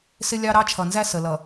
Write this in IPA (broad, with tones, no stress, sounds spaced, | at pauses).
s ɪ˦ lʲ ɑ˦ ɾ ɑ˦ t͡ʃʰ ʌ˨ n z æ˦ s ə˨ l ʌ˨